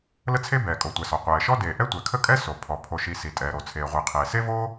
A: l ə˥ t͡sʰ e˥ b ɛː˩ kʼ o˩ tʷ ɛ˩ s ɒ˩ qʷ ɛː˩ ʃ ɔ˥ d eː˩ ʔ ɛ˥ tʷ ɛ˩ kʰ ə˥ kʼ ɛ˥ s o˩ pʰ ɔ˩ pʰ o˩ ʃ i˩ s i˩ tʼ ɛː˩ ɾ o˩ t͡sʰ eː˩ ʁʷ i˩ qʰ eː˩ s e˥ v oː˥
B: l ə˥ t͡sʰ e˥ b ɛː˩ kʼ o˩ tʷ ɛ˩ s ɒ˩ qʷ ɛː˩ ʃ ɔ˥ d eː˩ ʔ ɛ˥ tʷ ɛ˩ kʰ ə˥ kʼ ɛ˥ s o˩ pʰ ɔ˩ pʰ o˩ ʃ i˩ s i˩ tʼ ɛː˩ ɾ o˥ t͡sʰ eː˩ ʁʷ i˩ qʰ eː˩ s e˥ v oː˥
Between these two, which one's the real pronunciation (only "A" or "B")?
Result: A